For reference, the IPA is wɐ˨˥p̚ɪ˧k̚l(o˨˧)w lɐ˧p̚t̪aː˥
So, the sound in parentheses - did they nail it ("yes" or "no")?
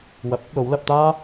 yes